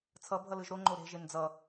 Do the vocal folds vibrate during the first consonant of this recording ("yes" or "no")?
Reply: no